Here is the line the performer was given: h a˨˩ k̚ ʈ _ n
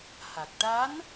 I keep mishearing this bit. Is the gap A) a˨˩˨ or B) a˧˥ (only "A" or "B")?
B